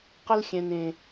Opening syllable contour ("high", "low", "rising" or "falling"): high